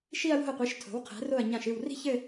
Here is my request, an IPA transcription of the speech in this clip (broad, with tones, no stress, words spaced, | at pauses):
ʃi˥˧ɐ̯wo̤˥˩ɐ̯qʷi˩˥ʃ tʰo̤˩˥wqʰɛ̤˩˥ ro˥˩ɐ̯ɲã˥˩ʃɨ˥˩w ri̤˥˧çɘ˥˧